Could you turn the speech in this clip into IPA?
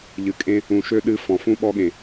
ʎ ɨ˨ kʼ ẽ˦ | ũ˨ ʃ ø˦ ɗ ɨ˦ f ɔ̃˨ f ũ˦ ɓ ɔ˦ ɠ ẽ˨

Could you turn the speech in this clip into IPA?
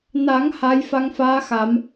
n a˨˩˦ ŋ h a˧˥ j f a˧˥ ŋ f aː˧˥ x a˨˩˦ m

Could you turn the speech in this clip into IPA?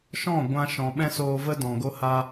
ʃ ɔ̃˦˨ ɡʷ ã˧ ʃ ɔ̃˨ ɓ ɛ̃˦ s oː˧ v ə˦ d ɔ̃˨ ɡ o˦ h a˦

